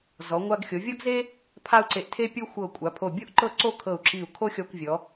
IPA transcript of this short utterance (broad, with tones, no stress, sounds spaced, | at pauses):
z ɔ˩˧ ŋʷ a˧ ɡ xʲ o˩˧ vʲ ɔ˥ ɡ z e˥ | pʰ a˥ u̯ ǀ e˧˩ ʔ tʰ e˥ pʲ ɤ˥ xʷ ɤ˧˩ kʷʼ a˩˧ pʰ o˧˩ bʲ o˥ ʔ ǃ ɤ˥˧ ǀ o˥˧ kʰ ɤ˧˩ u̯ ǁ i˧˩ u̯ kʰ o˥ xʲ ɔ˧ kʷ vʲ ɔ˩˧